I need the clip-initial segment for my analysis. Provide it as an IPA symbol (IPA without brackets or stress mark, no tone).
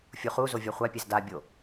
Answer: fʲ